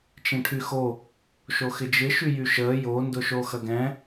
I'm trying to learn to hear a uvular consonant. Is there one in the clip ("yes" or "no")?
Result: no